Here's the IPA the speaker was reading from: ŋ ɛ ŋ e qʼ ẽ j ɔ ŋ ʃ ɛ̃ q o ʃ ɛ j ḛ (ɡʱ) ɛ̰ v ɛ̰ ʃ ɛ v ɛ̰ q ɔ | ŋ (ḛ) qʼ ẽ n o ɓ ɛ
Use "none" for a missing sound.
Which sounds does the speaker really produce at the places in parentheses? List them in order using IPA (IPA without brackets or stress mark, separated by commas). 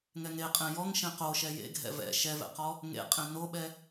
ɡʱ, ḛ